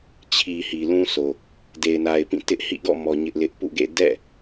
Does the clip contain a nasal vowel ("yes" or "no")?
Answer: yes